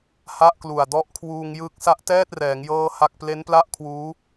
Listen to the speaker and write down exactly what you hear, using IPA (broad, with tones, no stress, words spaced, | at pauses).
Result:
ha˥˩ʔklu˨˩a̯ dɔ˦˥ʔkʰwuː˧ŋjɯ˦˥k̚ sa˦˥ʔtɛː˥˩t̚rɛː˩˦ŋ jɤː˥˩ha˥˩k̚ ple˦˥npla˥˩ʔkʰwuː˦˥